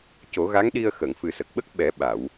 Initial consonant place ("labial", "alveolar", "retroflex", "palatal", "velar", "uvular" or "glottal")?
palatal